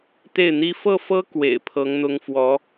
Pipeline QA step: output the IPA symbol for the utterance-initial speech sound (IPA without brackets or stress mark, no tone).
t̪